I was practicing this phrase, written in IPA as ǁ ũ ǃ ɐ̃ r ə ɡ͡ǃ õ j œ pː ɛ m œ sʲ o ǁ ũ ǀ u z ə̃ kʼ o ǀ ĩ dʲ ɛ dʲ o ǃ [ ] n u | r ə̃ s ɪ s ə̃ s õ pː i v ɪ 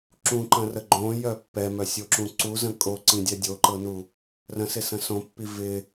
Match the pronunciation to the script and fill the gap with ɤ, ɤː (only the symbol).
ɤ